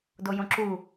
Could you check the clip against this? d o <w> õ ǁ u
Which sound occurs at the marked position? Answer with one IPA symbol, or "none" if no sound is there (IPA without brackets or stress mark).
j